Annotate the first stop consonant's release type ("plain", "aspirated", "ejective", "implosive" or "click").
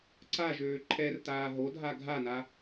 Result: click